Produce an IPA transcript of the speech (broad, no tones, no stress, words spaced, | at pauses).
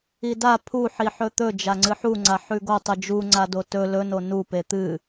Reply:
ida pʰuħiħɵ t̪ɵ d͡ʒaŋ͡ǀɨħuŋ͡ǀa ħʉɡo tˤɨd͡ʒuŋ͡ǀado tɵ lɵno nupe t̪ɨ